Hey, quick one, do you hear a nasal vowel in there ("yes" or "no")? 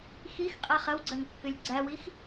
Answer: no